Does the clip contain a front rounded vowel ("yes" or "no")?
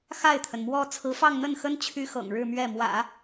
yes